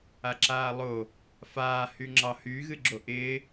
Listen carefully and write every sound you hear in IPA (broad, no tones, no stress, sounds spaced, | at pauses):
a ǁ aː lˠ oː | f aː h y ŋ͡ǁ ɑ h y ɣ ɨ ɡ͡ǁ o ʔ ɪː